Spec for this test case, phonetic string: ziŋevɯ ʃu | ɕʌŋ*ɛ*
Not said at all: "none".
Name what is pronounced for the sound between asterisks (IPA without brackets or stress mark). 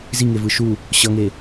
e